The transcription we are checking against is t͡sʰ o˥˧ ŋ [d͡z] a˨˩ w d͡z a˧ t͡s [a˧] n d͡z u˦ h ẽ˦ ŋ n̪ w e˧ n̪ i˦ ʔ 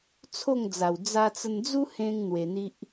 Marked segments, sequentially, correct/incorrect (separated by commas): correct, incorrect